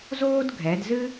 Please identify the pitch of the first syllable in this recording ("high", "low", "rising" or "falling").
high